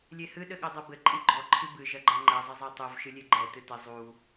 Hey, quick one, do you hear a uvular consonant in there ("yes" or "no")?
no